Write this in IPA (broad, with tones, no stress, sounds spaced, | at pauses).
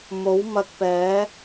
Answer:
m o˨˥ w m ɐ˧ k̚ p ɛː˨˥